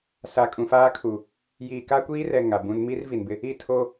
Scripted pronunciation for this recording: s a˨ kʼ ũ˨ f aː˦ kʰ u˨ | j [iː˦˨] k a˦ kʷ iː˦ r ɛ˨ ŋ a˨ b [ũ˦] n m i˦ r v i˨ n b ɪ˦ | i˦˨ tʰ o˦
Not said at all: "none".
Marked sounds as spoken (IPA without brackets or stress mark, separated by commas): iː˨, ũ˦